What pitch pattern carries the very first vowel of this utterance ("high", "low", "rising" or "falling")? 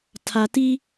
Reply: low